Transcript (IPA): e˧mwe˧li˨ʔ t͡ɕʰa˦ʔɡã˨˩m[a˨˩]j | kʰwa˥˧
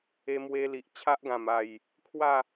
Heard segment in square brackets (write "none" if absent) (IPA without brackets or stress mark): a˨˩